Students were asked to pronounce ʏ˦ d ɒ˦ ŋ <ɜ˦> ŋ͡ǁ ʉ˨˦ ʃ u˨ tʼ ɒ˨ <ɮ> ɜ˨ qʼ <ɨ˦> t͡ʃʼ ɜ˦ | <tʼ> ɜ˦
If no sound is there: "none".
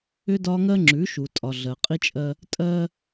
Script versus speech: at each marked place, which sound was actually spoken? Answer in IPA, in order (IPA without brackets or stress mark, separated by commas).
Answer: ɜ˦, ɮ, i˦, tʼ